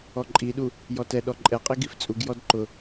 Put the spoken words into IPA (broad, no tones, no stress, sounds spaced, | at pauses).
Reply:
ɔ ǃʼ i ɗ u | j ɔ t ɛ ɗ ɔ ǃʼ ɛ qʼ i ɡ i f t͡sʼ u ɡ j ɔ d ǃ ʊ